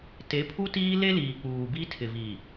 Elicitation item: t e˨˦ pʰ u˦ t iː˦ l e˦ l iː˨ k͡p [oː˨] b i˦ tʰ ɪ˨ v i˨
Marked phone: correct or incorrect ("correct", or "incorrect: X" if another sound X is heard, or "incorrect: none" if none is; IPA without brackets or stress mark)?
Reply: incorrect: uː˨